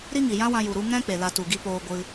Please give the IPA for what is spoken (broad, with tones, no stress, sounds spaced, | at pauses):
ɾ i˦ ŋ i˨ j ã˦ w ã˧ j u˨ ɾ u˧ ŋ ɛ̃˦ k͡p e˨ l a˧ t u˨ ɡ i˧ p oː˧ ɡʷ ɨ˧